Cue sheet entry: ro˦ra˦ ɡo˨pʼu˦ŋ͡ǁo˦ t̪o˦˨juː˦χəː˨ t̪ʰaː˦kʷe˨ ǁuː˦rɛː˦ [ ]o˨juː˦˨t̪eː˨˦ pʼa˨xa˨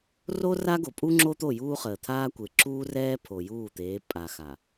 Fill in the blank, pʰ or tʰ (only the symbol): pʰ